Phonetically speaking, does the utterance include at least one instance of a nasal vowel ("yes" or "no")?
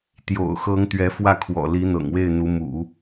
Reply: no